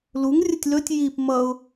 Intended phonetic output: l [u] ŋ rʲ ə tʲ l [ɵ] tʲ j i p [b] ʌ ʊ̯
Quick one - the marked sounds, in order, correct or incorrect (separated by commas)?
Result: correct, correct, incorrect